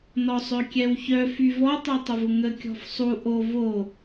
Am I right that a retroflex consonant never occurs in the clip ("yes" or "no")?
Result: yes